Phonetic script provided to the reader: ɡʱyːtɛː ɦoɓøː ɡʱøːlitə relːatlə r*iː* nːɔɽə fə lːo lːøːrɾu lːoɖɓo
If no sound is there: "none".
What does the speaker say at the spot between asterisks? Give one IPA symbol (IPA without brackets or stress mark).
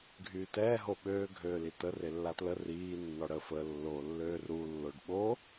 iː